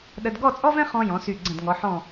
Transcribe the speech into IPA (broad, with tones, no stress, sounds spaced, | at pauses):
ɗ ə˧ d ɡ ɔ˥˧ t͡sʼ ɔ˥ v ɛ̃˥ χ ɔ̃˧ j ɔ̃˩˧ s y˧˩ ɡ͡ǀ ə̃˧˩ d ŋ ɔ˩˧ ħ ɔ̃˧˩